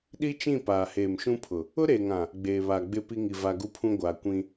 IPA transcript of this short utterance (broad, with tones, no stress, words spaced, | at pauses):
ɗi˦t͡ʃĩ˦˨ paː˨heː˨mʃũ˦pʰʊ˨ | ʊ˦ɾeː˨ŋã˨ | ɡ͡beː˨βaː˨ɡ͡bɪ˦˨ pi˦ ŋi˨va˨ɡu˦pʰũ˦ ɡʷaː˨kʷĩ˦